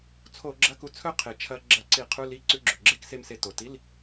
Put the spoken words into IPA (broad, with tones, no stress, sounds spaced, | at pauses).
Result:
t͡sʰ o˧˩˧ ɡ͡ǁ ɐ˧˥˧ k u˧ t͡sʰ ɵ˥˧ qʰ e˩ t͡ʃʰ ɐ˧ ɡ͡ǁ ɐ˧˩˧ ǀ i˧˩˧ qʰ u˧˥˧ l i˧˥˧ ǀ ʉ˧˥˧ ɡ͡ǁ ɵ˩ ɡ͡ǁ e˧˥˧ k s e˧ m s e˧ t o˩ t i˧˥˧ l